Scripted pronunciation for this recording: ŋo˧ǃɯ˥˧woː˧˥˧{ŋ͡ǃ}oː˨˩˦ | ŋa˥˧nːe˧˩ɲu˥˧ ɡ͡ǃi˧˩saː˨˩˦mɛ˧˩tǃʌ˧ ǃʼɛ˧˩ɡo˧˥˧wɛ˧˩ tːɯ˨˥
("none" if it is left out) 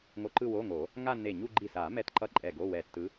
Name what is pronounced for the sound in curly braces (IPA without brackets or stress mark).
ŋ